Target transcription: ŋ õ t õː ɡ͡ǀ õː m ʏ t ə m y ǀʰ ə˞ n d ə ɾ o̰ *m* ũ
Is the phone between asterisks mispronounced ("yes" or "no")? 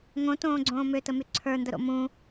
no